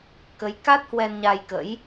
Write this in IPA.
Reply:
k ə˨˦ j k a˦˥ t̚ h w ɛ˧ n ɲ a˧ j k ə̰˧˥ j

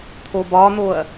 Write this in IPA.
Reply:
t̪ʰ o b ɒ n̪ o ɐ̯

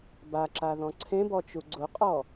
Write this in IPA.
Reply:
b a ǁ a ð ɔ̃ ǀʰ ẽ b ɔ t͡ʃ u ɡ͡ǀ ʊ qʼ ɔ

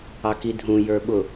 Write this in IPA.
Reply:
ɑ k i dʱ ũ j ə˞ ɓ ʊ

